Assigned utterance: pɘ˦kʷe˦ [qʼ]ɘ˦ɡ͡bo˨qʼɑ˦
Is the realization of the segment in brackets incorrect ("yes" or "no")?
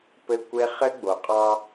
yes